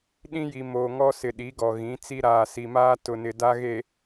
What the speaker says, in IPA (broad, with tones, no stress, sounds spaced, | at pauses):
ɗ ĩ˦ j i˨ m oː˨ ŋ ɔ˦ s ɪ˨ ɗ i˨˦ ɡ ɔ˨ ɣ ĩ˨˦ t͡s i˦ ɾ aː˨ s i˨ m aː˦ t ʊ˨ n ɪ˨ d a˦ ɣ e˨